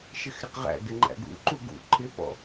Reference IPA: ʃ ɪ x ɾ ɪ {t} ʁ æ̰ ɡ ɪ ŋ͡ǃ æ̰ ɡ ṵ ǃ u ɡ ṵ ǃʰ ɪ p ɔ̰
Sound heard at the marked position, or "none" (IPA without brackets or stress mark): q